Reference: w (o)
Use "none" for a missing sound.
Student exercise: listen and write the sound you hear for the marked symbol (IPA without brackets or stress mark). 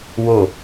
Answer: o